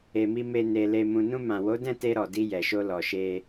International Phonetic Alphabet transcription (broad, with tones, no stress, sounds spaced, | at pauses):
e˨ m i˧ m e˨ n e˨ l e˨ m ũ˨ n ũ˧ m ã˨ w o˨˦ d ɛ̃˦˨ t e˧ ɾ ɔ˨ d i˧ j ɛ˨ ʃ o˧ l ɔ˨ ʃ e˧